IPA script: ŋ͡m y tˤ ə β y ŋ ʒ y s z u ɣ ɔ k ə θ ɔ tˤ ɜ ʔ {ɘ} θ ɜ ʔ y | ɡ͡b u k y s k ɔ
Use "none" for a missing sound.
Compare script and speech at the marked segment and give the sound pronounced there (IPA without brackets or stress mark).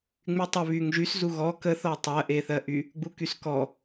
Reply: e